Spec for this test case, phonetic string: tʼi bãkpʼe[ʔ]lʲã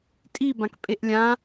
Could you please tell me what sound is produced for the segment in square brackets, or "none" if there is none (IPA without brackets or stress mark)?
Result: ʔ